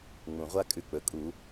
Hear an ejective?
yes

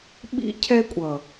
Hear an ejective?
yes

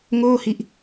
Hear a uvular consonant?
no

